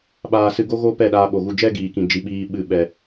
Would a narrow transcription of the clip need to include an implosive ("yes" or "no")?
yes